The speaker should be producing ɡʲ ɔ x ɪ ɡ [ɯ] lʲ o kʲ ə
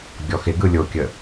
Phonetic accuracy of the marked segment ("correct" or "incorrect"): correct